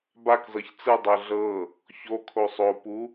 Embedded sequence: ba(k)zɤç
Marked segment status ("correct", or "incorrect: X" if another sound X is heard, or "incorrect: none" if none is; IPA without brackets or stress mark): correct